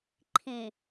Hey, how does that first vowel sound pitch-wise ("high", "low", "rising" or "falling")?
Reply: low